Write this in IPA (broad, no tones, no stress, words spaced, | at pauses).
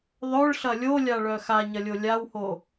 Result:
ðˤœɭɬɐ lʲolʲaɭœ xaɲɐlʲo lʲawho